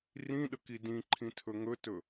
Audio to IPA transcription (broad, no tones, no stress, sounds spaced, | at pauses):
r ĩ ɗ ə k i d ĩ ǃʰ ĩ tʰ ɵ ŋ ɵ t ɵ